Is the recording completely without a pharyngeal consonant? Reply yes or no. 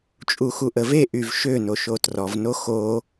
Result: yes